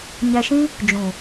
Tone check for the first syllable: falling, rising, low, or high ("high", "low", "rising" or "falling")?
low